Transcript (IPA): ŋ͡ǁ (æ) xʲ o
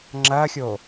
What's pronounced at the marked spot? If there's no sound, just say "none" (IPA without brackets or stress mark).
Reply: ɐ